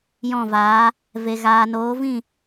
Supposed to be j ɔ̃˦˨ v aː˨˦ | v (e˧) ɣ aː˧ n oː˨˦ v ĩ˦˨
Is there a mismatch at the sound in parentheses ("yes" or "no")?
no